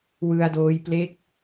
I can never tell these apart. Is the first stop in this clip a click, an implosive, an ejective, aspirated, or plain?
plain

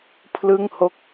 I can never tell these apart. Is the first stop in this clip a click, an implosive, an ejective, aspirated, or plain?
aspirated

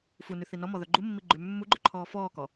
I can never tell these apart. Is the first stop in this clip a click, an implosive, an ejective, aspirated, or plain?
click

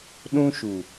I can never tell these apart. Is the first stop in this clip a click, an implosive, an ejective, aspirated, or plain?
implosive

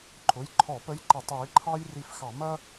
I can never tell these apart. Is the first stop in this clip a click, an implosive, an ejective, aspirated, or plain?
click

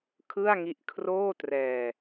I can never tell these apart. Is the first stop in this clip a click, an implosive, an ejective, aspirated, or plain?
aspirated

